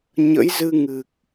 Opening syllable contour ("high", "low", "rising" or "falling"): rising